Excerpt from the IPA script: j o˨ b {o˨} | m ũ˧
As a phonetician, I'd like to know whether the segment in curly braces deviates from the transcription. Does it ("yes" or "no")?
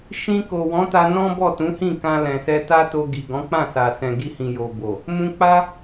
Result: no